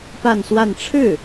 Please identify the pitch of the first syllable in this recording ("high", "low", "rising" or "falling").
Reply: falling